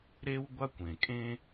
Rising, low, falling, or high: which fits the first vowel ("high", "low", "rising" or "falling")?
high